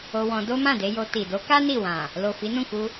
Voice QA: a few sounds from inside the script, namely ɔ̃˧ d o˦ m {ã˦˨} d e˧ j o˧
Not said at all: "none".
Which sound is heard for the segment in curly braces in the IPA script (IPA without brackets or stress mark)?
ã˦˨